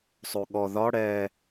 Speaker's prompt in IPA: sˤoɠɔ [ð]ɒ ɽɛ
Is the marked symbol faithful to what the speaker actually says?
yes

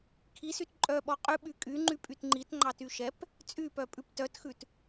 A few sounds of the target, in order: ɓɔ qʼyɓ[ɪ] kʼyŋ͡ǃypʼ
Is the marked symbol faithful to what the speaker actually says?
no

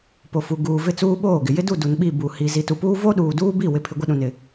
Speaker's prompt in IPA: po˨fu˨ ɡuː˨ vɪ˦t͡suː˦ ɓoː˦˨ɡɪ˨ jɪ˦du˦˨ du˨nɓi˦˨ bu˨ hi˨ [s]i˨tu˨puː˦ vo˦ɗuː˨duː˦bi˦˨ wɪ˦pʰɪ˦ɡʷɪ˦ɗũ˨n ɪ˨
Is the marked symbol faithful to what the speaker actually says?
no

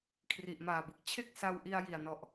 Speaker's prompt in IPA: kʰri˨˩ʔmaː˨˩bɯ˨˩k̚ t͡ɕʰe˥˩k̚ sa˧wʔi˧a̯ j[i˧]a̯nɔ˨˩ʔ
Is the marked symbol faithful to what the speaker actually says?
no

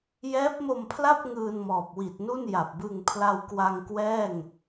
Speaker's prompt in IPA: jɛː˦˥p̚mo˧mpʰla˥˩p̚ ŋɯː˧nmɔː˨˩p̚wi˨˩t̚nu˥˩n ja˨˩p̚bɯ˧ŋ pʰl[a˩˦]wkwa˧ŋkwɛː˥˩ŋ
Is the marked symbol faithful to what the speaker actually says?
no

